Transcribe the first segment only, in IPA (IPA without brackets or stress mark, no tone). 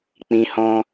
k͡p